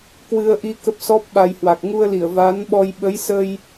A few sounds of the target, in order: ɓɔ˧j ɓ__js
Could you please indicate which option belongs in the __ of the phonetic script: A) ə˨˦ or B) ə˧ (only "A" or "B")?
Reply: A